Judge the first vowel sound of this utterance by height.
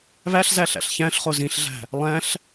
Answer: low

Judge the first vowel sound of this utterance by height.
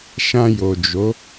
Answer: low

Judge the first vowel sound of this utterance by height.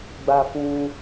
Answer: low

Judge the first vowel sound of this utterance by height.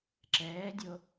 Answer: mid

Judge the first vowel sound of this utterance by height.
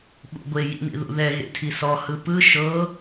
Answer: high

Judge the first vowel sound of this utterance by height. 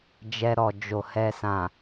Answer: mid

